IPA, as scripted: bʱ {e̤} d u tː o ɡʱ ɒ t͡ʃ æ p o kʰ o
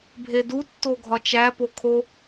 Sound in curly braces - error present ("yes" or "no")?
yes